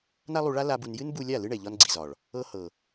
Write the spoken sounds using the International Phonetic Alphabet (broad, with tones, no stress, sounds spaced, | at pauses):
n a˦ lˠ u˧ ɭ a˦ l a˦ b u˧ n j ɨ˦ n b u˧ lʲ a˦˨ l ɨ˦ ɳ ɛ˨ ʎ ɒ˧ n ɡ͡ǀ i˨ z ɒ˨ ɭ | ɤ˧ h ɤ˨